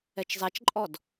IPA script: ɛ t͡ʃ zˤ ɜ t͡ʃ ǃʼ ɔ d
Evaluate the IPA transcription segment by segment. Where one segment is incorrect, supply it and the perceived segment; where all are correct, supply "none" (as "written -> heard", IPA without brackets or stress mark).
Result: ɜ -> ɛ